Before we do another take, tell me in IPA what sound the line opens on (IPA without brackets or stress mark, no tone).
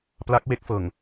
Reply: p